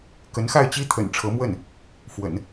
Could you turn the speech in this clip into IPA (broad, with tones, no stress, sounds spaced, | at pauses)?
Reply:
k ə˧˥ n x a˥˩ ɪ̯ t͡ɕ i˥ t̪ʰ ə̰˨˩ n ʈ͡ʂʰ ɤ˧˥ m w ə˥˩ n | f w ə̰˨˩˦ n